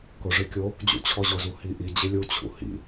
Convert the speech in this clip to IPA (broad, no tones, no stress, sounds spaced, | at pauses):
k ʊ ʐ ɪ kʲ o | d͡ʑ ṵ t͡ɕʰ ɔ ʑ ʊ z u h i ʔ i d͡ʑ ɪ lʲ u t͡ɕʰ ṵ h ḭ